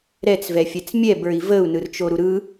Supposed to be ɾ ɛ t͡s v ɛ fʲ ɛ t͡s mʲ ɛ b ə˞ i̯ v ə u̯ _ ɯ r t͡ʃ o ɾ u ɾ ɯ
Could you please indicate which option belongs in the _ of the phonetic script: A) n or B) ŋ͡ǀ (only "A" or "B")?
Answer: A